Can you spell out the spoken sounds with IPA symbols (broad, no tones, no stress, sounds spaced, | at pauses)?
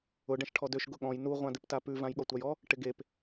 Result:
ʊ ɖ ɛ̃ ʃ ʈʰ ɔ d ø ʃ ɡ ʊ ɠ ɔ̃ j n u ʁʷ ã d ɪ p t a p ʉ v ã j ɠ ɔ tʷ a j ɔ | ʈ ɪ ɡ e p